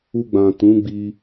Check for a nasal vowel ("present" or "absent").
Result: present